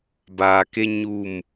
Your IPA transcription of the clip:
b aː˨ k e˦ ɲ u˦˨ m

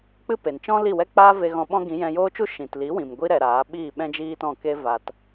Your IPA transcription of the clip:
k͡p ɨ˦ p e˨ n t͡ʃ ɔ̃˦ l i˦˨ w ɛ˦ k͡p aː˦ v e˧ ɣ ɔ̃˧ ɓ ɔ̃˦ ɡ ĩ˨˦ j ɛ̃˧ j oː˦ t͡ʃ u˦ ʃ ĩ˨ t l i˨˦ w ĩ˨ m ɡʷ i˦ ɾ ɛ˧ ɾ aː˨˦ ɓ iː˦˨ ɓ ɛ̃˦ d͡ʒ iː˦ t ɔ̃˦˨ k e˦ v a˧ t

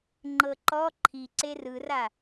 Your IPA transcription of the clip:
ŋ͡ǃ ɤ ǃ ɔ ǃʰ i ǀ e r ɯ r a

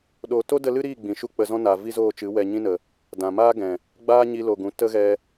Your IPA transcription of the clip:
ɗ oː˨ t o˦ d ə˦ l ɨ˦ ɾ iː˦˨ ɡ͡b ĩ˨ ʃ u˦ k͡p ə˧ z ɔ̃˦ n a˨ v i˦ z oː˦˨ t͡ʃ ɨ˨˦ w ɛ˧ ɲ ĩ˦ n ə˨ | d ã˨ m aː˦ ɡ ɛ̃˨ | ɡ͡b aː˦ ɲ i˧ l o˨ ɡ ũ˨ t ə˦ ɣ ɛ˧

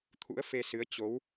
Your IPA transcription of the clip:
t̪ʰ ṵ˧˥ ə̯ f e˧ s ɨ˨˦ ə̯ t͡ɕ o˨˦ w

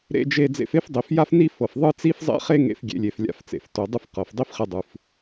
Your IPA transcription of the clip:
ɾ ḛ˧ d͡ʒ e˧ d͡z ḛ˧ f e˥ f dˤ i˩ f j a˥ f n i˥ f ɤ˩ f ðˤ ɯ˥ t͡s i˥ f zˤ ḛ˥ χ e˥ ŋ ḛ˧ f ɡʲ ḛ˧ lʲ e˩ f lʲ a̰˧ f t͡s ḛ˩ f t o˩ dˤ ɯ˥ f q ɤ˩ f dˤ i˥ f χ e˧ dˤ ɯ˩ f

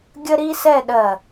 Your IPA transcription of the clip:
ɡʲ ə˥ ɾ i˥ s ɛ˥˧ ɗ ɜ˧˩

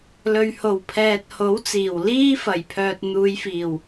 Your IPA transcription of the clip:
l ɵ˨ ɥ h o˨˩ w pʰ ɛː˨ t̚ h o˨˥ w t͡s iː˨˩ w l iː˥ f ɐ˨˩ j pʰ œː˨ t̚ n̪ uː˨˧ j f iː˨˩ w

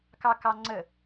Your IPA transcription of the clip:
k ɑ k ɑ ŋ͡ǀ ə

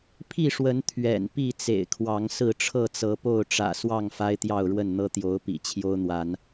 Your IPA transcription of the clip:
pʰ i˥˨ ʂ w ə˨˦ n t̪ʰ ɥ ɛ̰˨˩ n p i˥˨ t͡s ḛ˨˩ ɪ̯ kʰ w ɑ˨˦ ŋ s ɹ̩˥˨ ʈ͡ʂʰ ɤ˥˨ t͡s ɤ˨˦ p o˥˨ ʊ̯ ʈ͡ʂ ä̰˨˩ s w ɑ˥˨ ŋ f a˦ ɪ̯ t̪ j ɑ˥˨ ʊ̯ ɻ w ə˥˨ n n̪ ɤ˦ t̪ j o˨˦ ʊ̯ p ḭ˨˩ t͡ɕʰ j o˦ ʊ̯ n̪ w a˨˦ n

